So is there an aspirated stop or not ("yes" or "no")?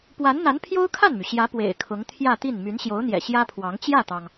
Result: yes